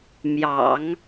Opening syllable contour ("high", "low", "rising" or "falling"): low